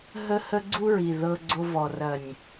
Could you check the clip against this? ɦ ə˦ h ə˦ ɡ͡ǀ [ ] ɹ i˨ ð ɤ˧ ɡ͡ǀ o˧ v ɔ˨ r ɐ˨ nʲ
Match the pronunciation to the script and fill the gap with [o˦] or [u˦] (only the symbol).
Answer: u˦